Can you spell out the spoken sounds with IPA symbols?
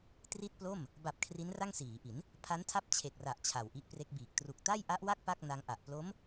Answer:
t r i˥˩ t̚ p l o˥˩ m | b a˨˩ p̚ kʰ r i˦˥ n r a˥˩ ŋ s iː˩˦ ʔ i˩˦ n | pʰ a˦˥ n tʰ a˦˥ p̚ t͡ɕʰ e˨˩ k̚ r a˨˩ ʔ t͡ɕʰ a˨˩ w ʔ i˦˥ ʔ p r e˦˥ k̚ b iː˨˩ k̚ t r u˨˩ k̚ t a˥˩ j ʔ a˦˥ ʔ w a˥˩ k̚ p a˥˩ k̚ n a˧ ŋ ʔ a˨˩ ʔ p l o˦˥ m

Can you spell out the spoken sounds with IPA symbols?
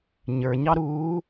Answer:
ɲ ə˞ ɲ ɑ ɾ uː

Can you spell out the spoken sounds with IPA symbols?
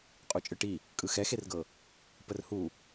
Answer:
qʼ u t͡ʃʼ ɯ ʈ i | kʼ ɯ x ɛ x e r ɡ ɤ | p ə r h u

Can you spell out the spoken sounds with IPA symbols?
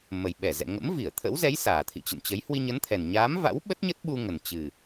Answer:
m ə˨˩ j ɓ ɛ˧˩ z ɛ̰˧˨ ŋ ə̰˧˥ m v i˧˩ ə̯ t̪ʰ ə̰˧˥ w z ɛ˨˦ j s aː˨˩ t̪ʰ ḭ˧˨ t͡ɕ ə̰˧˨ n t͡ɕ ə˨˦ j h w i˧ ɲ ə˨˦ n t̪ʰ ɛ˨˩ n ɲ aː˨˦ m v a̰˧˥ w ɓ ə˦˥ t̚ ɲ ə˦˥ t̚ ɓ u˧ ŋ ə˨˩ n t͡ɕ ɨ˨˩

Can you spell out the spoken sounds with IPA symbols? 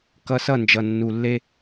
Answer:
k ʌ˧ s ʌ˦˨ n d͡ʒ ʌ˨ nː u˨ lː e˦

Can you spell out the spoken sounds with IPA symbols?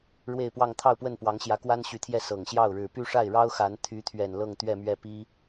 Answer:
ɻ w e˥˧ ɪ̯ p w ɑ˥˧ ŋ t̪ʰ ɑ˥˧ ʊ̯ p w ə˥˩ n p w ɑ˧˥ ŋ ɕ j ä˧˥ k w a˥ n ɕ y˧˥ t̪ʰ j ɛ˥˩ s ɤ˨˩ ŋ ɕ j ɑ˥˩ ʊ̯ ɻ ɻ̩˨˩ p y˥˧ ʂ a˥˩ ɪ̯ ɻ ɑ˥ ʊ̯ x a˧˥ n t̪ʰ y˧˥ t̪ʰ ɥ ɛ˨˩ n l ɤ˥˧ ŋ t̪ ɥ ɛ˥˧ m ɥ ɛ˥˩ p i˥

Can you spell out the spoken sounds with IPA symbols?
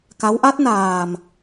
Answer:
k a˧˥ w ʔ a˦˥ t̚ n aː˨˩ m

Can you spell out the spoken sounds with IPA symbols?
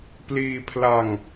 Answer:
p l iː˧ pʰ l a˧ ŋ

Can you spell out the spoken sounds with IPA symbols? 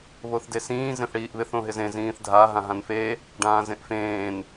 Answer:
β o θ d e s ĩː z ẽ θ ɽ iː ʔ β ɪ θ õ ɦ ɪ z ẽ z ĩː θ dʱ a ɦ ã ɦ ã n f e | ɖ ãː z ẽ ʔ f ẽː n

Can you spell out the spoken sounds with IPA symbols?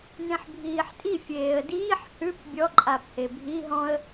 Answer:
n ẽ ħ bʱ iː ħ tʼ i fʲ eː ə̯ d iː ħ h ʉ p bʲ ɔ ǃʼ a p h e bʱ i ɦ ɔ̃ ə̯

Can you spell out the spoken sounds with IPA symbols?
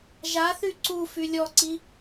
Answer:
ʒ a θ y ǀ u f y lʲ ɔ ǀ i

